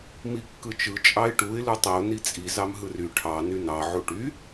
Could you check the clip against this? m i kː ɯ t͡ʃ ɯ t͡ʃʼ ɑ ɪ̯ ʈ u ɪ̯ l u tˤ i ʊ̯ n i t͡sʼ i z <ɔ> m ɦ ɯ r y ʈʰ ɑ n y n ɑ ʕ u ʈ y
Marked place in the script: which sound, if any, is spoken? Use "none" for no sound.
ɑ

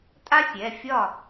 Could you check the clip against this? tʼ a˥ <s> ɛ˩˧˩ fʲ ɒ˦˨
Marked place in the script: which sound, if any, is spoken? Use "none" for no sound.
sʲ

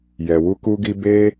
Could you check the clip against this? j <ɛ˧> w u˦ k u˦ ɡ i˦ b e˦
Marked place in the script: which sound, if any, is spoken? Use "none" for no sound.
ɛ˧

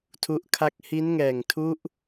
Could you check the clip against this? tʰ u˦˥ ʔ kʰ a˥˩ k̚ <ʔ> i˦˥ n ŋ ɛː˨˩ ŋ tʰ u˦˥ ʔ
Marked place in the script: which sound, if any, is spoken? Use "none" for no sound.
h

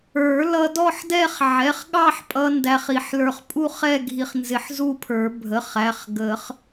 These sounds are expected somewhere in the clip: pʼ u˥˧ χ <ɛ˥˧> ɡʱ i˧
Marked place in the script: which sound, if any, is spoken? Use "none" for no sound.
ɛ˥˧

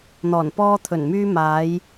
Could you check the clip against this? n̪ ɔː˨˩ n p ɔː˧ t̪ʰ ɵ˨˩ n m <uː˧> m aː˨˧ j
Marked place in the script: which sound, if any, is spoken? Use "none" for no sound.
yː˧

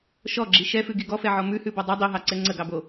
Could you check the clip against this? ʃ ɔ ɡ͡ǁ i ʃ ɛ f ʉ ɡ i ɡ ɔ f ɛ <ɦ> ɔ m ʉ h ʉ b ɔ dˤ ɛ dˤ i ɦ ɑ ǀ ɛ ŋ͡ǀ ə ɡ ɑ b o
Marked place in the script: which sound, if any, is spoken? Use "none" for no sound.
ʕ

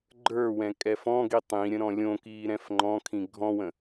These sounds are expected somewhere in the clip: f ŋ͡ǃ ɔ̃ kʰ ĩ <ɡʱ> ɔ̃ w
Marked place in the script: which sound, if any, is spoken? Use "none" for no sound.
ɡʱ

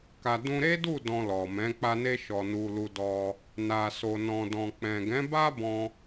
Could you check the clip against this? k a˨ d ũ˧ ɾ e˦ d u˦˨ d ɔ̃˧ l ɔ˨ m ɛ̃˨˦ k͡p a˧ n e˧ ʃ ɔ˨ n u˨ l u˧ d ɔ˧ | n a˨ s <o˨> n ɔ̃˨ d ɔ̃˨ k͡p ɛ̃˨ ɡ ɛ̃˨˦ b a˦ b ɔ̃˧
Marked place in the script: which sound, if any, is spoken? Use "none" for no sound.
o˨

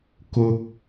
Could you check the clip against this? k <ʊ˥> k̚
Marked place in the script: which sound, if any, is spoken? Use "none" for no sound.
ʊ˥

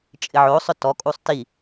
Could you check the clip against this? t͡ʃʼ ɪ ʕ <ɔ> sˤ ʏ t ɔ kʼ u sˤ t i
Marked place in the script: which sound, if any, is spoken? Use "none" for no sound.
o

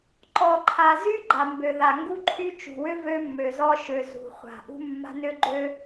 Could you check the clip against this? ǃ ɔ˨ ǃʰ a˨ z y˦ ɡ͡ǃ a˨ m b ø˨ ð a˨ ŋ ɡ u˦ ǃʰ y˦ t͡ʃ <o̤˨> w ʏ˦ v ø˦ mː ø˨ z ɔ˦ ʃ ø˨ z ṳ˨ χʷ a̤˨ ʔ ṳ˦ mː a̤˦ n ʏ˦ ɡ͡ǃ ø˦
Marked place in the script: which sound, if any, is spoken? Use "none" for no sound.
ṳ˨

